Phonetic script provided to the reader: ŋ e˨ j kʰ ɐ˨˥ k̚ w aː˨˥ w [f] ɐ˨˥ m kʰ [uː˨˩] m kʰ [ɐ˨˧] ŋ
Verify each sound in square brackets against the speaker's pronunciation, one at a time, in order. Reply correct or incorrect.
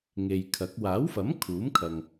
correct, incorrect, incorrect

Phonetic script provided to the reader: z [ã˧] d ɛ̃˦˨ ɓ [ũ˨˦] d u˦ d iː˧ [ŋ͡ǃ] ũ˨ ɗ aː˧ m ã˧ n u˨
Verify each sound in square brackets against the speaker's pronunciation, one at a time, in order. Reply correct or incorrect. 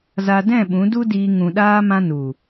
incorrect, correct, incorrect

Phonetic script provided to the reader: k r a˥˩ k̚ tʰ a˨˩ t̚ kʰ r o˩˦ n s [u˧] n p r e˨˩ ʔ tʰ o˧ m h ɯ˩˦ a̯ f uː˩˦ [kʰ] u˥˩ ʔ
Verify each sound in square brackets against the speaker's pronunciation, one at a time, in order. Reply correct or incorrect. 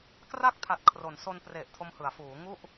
incorrect, incorrect

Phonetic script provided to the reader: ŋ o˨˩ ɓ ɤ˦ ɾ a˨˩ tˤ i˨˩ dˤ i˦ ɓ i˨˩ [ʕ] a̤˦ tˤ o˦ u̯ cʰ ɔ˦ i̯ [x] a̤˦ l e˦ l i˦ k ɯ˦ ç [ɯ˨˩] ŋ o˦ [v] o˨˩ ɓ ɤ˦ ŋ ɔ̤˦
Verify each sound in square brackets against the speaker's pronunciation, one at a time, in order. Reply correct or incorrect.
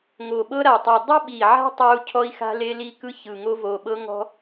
correct, correct, correct, correct

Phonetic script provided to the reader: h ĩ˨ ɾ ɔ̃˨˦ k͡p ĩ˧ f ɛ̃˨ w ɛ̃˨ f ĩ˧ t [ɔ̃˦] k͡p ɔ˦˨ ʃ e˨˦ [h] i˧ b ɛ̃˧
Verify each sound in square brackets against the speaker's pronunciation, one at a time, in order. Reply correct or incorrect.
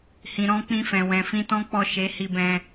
correct, correct

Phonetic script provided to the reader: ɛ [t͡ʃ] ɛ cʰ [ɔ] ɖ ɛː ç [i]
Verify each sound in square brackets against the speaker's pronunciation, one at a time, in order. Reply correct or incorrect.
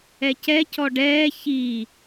incorrect, correct, correct

